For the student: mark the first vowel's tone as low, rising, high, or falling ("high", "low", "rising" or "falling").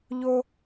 high